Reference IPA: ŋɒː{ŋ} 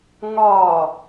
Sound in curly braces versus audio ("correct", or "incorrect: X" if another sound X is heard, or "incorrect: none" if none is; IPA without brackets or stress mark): incorrect: none